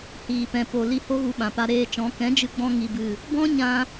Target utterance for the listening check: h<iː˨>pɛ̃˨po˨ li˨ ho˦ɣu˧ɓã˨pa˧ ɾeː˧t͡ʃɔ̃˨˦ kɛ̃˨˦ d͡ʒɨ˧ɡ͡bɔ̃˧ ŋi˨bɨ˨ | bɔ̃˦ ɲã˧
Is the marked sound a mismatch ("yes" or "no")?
no